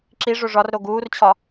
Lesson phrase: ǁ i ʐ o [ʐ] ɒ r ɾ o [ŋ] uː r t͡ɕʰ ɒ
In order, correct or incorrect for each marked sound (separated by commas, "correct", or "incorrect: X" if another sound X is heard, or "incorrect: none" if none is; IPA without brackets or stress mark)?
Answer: correct, incorrect: ɡ